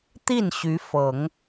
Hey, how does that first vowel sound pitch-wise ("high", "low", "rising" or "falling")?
falling